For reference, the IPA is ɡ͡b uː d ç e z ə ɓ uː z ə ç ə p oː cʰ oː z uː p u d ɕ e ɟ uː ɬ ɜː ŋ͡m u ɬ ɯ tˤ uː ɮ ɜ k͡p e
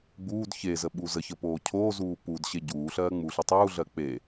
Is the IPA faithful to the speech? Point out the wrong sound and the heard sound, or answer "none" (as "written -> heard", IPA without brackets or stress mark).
none